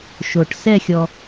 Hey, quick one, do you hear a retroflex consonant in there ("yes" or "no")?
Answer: yes